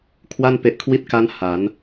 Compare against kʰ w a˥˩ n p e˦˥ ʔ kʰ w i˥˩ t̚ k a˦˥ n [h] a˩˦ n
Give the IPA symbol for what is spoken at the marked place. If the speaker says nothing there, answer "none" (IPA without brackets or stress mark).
h